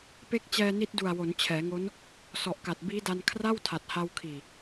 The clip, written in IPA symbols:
p e˥˩ k̚ t͡ɕ ɛː˧ n i˦˥ t̚ d u˨˩ a̯ w o˩˦ n t͡ɕʰ ɛː˩˦ ŋ o˦˥ n | s ɔ˨˩ ʔ k a˨˩ t̚ b iː˦˥ d a˧ n kʰ r a˥˩ w tʰ a˨˩ t̚ h a˧ w kʰ iː˨˩

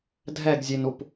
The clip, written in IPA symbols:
dʱ ɛ ɡ zʲ e n u p

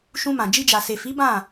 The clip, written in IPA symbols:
ʃ ũ˧ m ã˨ d͡ʒ i˧ d͡ʒ a˨ s e˨ f i˨˦ b ã˦˨

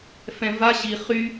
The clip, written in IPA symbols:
f ɛ̃ v a ʑ i χ y

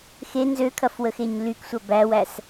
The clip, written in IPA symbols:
x e n z ø kʰ ɐ f w ə x e ɲ l y k sʷ ɐ b æ w æ s

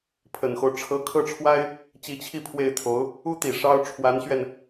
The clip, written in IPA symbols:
pʰ ə˨˩ n x o˦ ʊ̯ ʈ͡ʂʰ ɤ˧˥ kʰ ɤ˥˩ ʈ͡ʂʰ w a˥ ɪ̯ | t͡ɕ i˧˥ t͡ɕʰ i˥˧ pʰ w e˥˩ ɪ̯ t̪ʰ o˧˥ ʊ̯ | u˥ t̪ i˨˩ ʂ ɑ˥ ʊ̯ ʈ͡ʂʰ w a˧˥ n ɕ ɥ ɛ˧ n

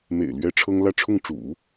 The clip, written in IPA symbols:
m ḛ˨˩ ɪ̯ l ɥ ɛ˥ ʈ͡ʂʰ ɤ˥ ŋ l ä˥˧ ʈ͡ʂʰ ʊ˥˩ ŋ ʈ͡ʂ ṵ˨˩˦

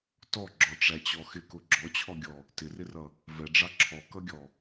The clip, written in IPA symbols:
t ɔ ɡ͡ǁ ɔ ʈ͡ʂ æ t͡ɕ ɔ x ɪ k ʊ ɡ͡ǁ ɔ t͡ɕʰ ɔ ɡʲ ɔ | t ɪ r ɪ r ʌ | v ɛ ɖ͡ʐ ɑ ǁʰ ɔ k ʌ ɡʲ ɔ

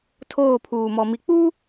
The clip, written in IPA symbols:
tʰ oː˦˨ pʰ uː˨ m ɔ˨ m i˨ k͡p uː˦

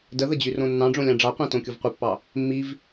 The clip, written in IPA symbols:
d ə ð ə d͡ʑ y r õ nː ɑ̃ ɖ͡ʐ õ lʲ ɑ̃ ɖ͡ʐ ɑ qʷ ɑ̃ t õ kʲ o v qʷ ɪ pː ɑ | mː i v

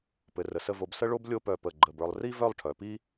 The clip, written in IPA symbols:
p ɘ˩˧ r ə˩˧ s ə˥˧ v o˧ b s ə˥ ɭ o˥ b lʲ o˥˧ p œ˧˩ p ə˧˩ ɡ͡ǃ ə˧˩ b ə˞˧ lˠ r i˥ v œ˥˧ lˠ ʈʰ œ˩˧ p i˥

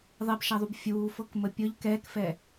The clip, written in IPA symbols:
ðˤ ɛ b ʃ æ ðˤ u b fʲ uː f ɤ k m ə pʲ ɤ ʎ k ɛː k f ɛ

